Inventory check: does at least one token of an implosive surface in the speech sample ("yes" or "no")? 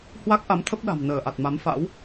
yes